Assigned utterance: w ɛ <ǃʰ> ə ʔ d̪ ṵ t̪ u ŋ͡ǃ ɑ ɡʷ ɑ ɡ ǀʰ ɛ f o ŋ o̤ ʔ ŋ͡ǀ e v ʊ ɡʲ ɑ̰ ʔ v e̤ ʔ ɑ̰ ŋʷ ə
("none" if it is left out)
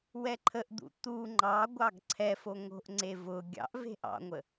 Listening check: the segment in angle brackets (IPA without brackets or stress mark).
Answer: ǃʰ